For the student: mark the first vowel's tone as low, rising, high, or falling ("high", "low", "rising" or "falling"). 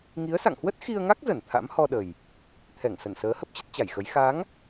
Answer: rising